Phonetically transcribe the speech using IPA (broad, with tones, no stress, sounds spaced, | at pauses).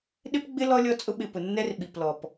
ɗ ɪ˦ p ɡ͡b ɪ˦ l ɔ˦ lʲ ɔ˦ t͡sʼ ʊ˦ ɓ ɪ˨ p ʊ˨ nː ɛ˦ r ɓ i˨ p l ɔ˨ p